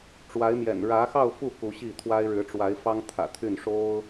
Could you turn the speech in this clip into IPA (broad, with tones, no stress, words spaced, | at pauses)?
ʈ͡ʂwa˧˥ɪ̯mjɛ̰˨˩n ɻä˧˥xɑ˥˧ʊ̯ fu˥˩ ku˧˥ɕi˥˩t̪ʰwa˥ɪ̯ ɻɻ̩˧˥ʈ͡ʂwa˧˥ɪ̯fɑ˥ŋ t̪ʰä̰˨˩t̪ʰy˥˩n ʂo˥ʊ̯